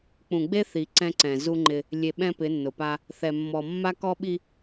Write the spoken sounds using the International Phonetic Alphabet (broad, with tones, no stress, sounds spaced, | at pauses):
k͡p ũ˨ ɡ͡b e˦ θ i˨ ǀ ɛ̃˦ ǀ ɛ̃˨ z u˦ ŋ͡ǃ ɪ˦ | lʲ e˨ ɓ ɛ̃˦ p ɪ˨˦ nː ʊ˨ p a˦ | θ ɛ˨ mː ɔ˨ mː a˦ k ɔ˦ ɓ i˦